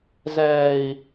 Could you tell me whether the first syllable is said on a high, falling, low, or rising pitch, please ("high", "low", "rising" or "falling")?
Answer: low